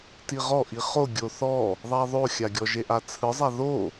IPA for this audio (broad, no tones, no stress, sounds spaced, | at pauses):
t i ʁ ɔ ʔ i χ o ɡʲ o θ ɔ | ðˤ a ðˤ o xʲ a ɡʲ ɔ ʒ e ʔ a t͡sʰ ɯ zˤ a ð o